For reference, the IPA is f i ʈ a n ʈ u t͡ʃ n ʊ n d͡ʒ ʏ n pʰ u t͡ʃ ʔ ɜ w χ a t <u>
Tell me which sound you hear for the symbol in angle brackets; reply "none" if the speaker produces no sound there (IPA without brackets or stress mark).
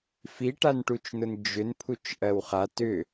ʏ